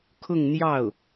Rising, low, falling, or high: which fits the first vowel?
falling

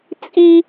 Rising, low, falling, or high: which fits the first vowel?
high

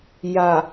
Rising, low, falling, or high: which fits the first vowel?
low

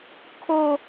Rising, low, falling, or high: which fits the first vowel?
high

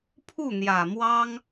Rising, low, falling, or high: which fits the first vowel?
falling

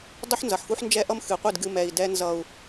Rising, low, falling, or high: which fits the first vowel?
high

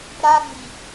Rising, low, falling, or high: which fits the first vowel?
high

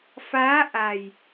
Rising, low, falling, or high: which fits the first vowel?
rising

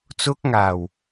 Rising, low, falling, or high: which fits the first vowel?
high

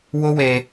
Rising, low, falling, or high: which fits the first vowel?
high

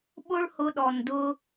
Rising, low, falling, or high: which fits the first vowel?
high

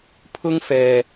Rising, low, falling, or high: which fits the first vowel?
high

